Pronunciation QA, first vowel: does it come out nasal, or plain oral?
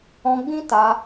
nasal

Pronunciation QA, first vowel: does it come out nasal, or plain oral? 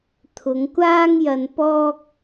oral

